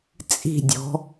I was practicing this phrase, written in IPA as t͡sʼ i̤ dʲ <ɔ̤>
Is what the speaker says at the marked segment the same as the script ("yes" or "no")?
yes